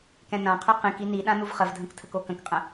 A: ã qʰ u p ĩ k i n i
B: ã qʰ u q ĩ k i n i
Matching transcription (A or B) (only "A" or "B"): B